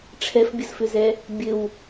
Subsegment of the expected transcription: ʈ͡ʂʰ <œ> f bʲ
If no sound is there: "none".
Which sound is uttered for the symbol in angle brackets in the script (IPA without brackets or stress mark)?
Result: ɛ